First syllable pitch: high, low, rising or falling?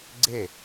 falling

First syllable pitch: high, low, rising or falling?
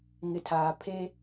low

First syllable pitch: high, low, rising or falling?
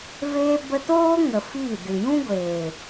high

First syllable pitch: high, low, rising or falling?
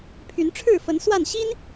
rising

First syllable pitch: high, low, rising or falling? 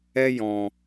high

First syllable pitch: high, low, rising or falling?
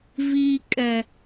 low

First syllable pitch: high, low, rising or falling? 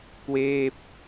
falling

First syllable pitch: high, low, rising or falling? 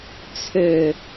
low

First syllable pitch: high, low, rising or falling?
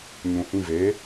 low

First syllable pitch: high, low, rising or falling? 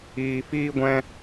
high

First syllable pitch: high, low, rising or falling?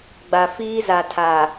low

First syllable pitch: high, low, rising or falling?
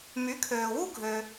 rising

